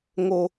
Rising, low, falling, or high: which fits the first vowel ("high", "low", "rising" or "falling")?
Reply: high